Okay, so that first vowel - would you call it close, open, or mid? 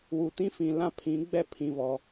close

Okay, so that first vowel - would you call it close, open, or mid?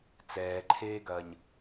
mid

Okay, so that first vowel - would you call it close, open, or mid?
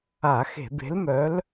open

